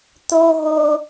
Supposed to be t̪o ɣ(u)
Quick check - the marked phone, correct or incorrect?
incorrect